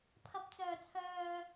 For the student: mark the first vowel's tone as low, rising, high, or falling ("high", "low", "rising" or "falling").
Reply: low